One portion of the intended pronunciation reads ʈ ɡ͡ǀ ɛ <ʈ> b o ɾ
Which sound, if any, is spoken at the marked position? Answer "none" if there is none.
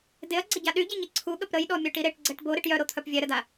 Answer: ʈ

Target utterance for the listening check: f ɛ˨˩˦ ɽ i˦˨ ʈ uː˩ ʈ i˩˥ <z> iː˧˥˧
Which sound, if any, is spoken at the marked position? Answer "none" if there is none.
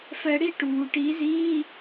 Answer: z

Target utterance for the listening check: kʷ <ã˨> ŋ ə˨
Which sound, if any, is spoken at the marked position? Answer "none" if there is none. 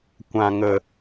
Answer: ã˨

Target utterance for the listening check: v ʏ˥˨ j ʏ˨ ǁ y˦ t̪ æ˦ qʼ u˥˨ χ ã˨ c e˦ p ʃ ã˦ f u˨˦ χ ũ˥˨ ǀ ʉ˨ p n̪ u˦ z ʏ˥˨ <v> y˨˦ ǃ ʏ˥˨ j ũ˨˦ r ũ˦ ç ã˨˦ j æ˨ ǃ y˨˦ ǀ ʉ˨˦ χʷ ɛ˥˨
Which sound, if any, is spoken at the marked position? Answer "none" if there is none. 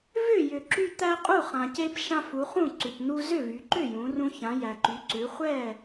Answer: v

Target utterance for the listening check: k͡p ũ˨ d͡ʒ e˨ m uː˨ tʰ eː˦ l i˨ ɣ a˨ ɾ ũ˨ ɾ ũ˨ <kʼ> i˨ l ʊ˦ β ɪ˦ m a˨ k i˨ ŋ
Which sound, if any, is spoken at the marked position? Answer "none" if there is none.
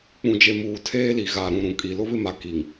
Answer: kʼ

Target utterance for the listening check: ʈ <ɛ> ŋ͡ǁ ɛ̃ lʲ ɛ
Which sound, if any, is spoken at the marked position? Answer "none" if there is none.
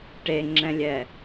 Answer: e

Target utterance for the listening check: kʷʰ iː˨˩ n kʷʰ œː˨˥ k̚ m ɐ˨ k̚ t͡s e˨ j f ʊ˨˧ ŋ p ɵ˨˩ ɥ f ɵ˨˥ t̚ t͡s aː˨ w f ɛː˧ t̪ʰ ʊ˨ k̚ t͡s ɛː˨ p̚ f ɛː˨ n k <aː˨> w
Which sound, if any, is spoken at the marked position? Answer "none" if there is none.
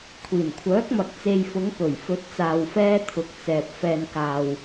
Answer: aː˨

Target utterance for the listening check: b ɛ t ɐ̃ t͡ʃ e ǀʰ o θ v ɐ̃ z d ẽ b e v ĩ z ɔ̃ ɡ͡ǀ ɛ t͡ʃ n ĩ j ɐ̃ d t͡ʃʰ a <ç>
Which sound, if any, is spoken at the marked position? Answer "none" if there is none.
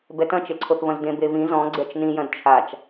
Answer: t͡ʃ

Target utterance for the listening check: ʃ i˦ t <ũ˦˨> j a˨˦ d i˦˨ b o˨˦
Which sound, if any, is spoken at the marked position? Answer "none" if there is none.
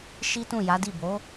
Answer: ũ˦˨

